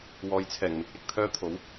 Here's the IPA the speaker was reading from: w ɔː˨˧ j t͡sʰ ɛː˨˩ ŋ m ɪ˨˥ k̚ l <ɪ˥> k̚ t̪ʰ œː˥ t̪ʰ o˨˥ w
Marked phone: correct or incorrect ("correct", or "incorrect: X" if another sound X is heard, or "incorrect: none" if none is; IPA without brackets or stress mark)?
incorrect: ɪ˧